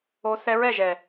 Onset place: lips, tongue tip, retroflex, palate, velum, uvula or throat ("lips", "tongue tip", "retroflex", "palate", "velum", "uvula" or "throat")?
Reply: tongue tip